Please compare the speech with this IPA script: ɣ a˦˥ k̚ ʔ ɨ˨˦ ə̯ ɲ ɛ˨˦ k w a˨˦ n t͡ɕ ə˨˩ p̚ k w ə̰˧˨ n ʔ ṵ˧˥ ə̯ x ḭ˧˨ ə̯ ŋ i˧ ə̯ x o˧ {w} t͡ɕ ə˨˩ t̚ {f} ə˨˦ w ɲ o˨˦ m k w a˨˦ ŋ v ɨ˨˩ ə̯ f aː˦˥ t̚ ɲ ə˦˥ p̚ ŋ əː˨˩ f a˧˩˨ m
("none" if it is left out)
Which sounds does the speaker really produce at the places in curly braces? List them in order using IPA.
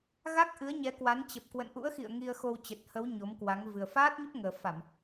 w, h

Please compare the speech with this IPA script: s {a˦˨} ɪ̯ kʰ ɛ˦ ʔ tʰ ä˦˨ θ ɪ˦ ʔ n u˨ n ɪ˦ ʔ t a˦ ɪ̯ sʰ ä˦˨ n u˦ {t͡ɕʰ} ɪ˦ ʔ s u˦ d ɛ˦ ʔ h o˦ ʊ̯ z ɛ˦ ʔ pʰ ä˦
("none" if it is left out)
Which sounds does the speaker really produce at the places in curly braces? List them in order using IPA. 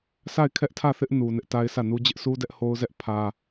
a˦˨, d͡ʑ

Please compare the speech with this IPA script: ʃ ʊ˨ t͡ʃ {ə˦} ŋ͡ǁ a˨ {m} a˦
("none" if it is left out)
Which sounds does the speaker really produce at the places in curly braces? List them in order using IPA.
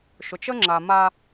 ə˦, m

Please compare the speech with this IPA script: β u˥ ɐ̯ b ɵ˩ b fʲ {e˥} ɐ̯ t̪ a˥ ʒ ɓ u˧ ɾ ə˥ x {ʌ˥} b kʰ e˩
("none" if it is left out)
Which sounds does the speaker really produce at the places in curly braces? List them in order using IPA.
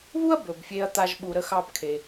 e˥, ɑ˥

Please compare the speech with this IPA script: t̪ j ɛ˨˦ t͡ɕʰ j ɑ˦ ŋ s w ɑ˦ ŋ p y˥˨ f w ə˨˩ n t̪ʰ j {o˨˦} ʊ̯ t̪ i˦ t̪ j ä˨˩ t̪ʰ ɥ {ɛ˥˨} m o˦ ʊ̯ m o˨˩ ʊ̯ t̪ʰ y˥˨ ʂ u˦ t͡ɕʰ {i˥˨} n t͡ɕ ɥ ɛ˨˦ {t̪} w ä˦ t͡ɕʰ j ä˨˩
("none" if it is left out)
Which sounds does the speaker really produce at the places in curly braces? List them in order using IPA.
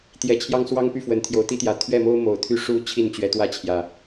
o˨˦, ɛ˥˨, i˥˨, t̪

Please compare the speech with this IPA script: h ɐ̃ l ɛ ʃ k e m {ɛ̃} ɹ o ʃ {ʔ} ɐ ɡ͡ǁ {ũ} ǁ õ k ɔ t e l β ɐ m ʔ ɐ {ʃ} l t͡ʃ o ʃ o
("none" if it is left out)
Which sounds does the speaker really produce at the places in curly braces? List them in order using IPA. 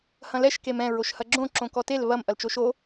ɛ̃, h, õ, none

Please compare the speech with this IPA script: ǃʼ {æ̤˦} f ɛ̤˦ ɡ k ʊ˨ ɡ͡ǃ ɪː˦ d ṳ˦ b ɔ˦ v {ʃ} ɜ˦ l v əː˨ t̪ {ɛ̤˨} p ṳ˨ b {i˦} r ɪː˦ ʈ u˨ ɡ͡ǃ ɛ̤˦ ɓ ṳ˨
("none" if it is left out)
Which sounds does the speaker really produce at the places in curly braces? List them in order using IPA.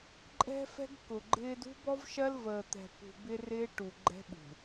ɛ̤˦, ʃ, ɛ̤˨, ɪ˦

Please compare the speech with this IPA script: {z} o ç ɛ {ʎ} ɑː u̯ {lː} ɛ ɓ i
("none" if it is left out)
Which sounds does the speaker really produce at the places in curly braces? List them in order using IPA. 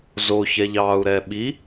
z, ʎ, ɾ

